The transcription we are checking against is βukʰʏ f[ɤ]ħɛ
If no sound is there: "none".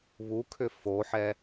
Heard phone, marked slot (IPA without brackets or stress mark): o